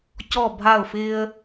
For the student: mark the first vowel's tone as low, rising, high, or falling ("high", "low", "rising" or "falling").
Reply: falling